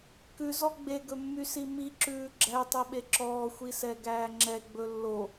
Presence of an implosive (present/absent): present